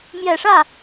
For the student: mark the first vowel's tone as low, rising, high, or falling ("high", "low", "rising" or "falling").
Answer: low